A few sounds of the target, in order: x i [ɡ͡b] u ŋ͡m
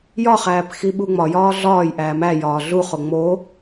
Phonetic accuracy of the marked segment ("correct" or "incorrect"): incorrect